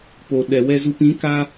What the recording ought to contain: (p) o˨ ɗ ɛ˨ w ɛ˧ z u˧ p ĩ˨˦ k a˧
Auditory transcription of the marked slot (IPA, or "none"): p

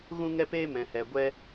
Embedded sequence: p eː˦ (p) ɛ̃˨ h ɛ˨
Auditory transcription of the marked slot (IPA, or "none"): m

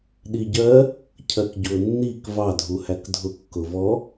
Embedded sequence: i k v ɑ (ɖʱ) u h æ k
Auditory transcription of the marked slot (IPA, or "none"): dʱ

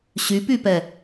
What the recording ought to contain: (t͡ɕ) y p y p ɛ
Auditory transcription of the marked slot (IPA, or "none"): ɕ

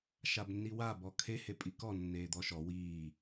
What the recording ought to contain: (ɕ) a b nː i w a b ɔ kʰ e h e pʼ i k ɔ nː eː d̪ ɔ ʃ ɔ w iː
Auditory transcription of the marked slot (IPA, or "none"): ʃ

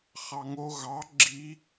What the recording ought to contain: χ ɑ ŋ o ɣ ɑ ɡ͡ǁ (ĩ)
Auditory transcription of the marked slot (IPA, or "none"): i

